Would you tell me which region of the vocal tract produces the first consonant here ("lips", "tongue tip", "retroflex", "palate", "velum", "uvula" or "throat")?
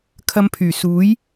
velum